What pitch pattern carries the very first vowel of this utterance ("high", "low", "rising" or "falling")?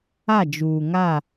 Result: falling